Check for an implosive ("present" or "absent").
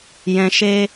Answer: absent